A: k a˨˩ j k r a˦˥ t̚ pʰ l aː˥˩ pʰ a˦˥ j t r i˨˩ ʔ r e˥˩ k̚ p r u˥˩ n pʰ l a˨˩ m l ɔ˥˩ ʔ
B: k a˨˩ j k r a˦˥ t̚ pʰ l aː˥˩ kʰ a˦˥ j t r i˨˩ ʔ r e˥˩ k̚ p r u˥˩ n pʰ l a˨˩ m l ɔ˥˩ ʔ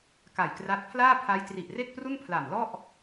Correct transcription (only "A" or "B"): A